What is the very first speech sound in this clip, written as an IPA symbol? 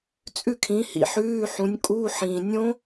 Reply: t͡sʼ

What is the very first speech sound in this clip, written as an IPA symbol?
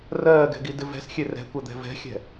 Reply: r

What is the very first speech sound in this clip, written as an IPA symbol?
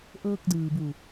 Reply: ʔ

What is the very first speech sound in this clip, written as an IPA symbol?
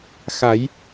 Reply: x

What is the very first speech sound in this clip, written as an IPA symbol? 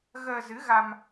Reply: ɣ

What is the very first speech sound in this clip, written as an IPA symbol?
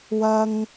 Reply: w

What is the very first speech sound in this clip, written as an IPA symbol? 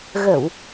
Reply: ɣ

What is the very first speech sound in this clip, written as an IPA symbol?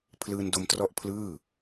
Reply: pʰ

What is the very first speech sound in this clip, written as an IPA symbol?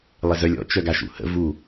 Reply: lˠ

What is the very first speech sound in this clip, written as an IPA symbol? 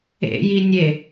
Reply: ḛ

